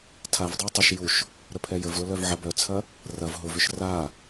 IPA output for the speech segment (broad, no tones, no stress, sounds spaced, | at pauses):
tʰ a v dˤ ʊ ɐ̯ tˤ ʊ ʃ j u ʃ | ɾ ə pʰ ɛ j ə v l ʊ l œ v ʕ ɐ b œ t͡sʰ ɐ | r ɐ v ɦ ʊ v ʏ ʃ r a